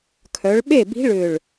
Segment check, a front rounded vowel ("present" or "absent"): present